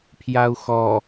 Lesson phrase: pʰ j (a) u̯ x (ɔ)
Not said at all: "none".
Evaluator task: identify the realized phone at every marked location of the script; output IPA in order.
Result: a, ɔ

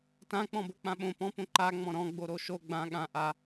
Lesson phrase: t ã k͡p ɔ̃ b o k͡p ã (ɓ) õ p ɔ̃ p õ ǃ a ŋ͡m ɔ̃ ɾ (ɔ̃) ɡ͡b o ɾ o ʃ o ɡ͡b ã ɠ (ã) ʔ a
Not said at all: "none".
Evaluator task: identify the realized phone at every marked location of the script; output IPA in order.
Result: ɓ, ɔ̃, ã

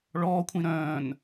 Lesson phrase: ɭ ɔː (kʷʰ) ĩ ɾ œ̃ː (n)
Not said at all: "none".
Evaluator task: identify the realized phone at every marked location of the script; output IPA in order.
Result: kʷʰ, n

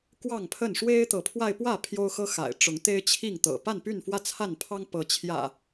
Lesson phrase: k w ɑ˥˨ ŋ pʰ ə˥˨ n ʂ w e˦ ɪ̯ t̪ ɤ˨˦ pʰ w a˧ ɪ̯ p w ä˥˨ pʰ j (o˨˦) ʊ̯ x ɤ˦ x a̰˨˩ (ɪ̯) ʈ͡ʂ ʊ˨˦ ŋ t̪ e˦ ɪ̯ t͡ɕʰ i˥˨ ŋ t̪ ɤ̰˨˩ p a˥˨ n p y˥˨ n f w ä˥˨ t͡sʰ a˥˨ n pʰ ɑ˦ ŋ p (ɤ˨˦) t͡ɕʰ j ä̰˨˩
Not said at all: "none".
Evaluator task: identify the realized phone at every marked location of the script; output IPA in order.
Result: o˦, ɪ̯, ɤ˨˦

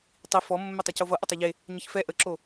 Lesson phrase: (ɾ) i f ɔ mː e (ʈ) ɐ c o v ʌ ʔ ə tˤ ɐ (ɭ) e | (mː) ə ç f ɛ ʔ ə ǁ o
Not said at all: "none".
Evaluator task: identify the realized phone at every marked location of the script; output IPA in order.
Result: tˤ, tˤ, ʎ, ɲ

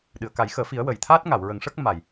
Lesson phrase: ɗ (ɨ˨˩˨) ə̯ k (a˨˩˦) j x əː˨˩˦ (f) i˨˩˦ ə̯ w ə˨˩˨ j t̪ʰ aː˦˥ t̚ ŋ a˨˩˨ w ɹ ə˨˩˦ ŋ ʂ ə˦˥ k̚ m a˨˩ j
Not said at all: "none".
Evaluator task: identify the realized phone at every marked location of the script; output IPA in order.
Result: ɨ˨˩˨, a˨˩˦, f

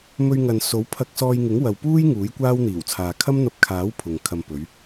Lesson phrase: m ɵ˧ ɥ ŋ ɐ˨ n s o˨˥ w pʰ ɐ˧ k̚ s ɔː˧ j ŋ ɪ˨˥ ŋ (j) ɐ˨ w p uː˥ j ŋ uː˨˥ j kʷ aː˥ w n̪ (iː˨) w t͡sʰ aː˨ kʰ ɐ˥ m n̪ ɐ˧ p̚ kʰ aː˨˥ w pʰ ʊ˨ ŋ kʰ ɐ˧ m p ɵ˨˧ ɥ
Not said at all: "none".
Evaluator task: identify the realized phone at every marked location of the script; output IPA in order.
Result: w, iː˨˩

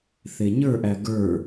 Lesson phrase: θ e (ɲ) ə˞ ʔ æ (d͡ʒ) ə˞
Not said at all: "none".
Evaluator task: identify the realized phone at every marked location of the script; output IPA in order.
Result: ɲ, ɡ

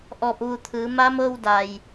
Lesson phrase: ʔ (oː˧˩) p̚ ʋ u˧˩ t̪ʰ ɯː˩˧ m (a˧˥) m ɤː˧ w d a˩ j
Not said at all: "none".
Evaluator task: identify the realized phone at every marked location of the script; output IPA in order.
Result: ɔː˧˩, a˧˥

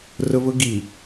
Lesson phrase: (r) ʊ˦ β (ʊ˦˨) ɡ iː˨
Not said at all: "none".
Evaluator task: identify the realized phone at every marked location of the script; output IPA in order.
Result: r, ʊ˦

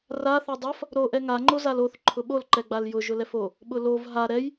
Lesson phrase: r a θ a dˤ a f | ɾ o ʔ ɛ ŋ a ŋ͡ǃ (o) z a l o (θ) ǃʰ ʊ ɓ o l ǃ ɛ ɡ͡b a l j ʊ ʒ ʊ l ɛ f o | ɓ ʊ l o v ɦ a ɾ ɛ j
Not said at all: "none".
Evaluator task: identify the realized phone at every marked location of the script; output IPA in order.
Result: o, θ

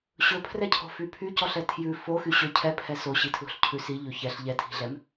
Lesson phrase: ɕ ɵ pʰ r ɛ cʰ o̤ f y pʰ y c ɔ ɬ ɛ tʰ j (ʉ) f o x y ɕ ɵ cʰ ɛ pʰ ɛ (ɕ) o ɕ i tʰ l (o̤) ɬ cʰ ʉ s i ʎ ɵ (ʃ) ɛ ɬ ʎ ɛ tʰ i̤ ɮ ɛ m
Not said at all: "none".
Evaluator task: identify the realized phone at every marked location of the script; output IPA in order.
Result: ʉ, s, o̤, ç

